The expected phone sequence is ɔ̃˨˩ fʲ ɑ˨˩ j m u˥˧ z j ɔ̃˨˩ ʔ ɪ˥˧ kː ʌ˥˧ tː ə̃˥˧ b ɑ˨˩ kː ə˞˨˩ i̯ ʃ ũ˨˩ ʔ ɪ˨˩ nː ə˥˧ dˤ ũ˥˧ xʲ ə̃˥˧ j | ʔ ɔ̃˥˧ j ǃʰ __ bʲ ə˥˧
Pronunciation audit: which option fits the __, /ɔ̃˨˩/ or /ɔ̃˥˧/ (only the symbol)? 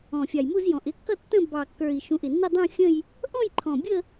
ɔ̃˨˩